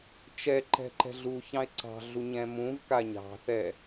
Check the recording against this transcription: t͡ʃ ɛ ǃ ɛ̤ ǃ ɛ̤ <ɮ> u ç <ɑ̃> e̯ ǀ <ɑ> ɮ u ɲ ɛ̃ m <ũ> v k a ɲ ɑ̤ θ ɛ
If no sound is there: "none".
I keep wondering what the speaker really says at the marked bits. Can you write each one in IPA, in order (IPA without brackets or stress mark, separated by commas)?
ɮ, ɑ̃, ɑ̤, ũ